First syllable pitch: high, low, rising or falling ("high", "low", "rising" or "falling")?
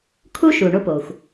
high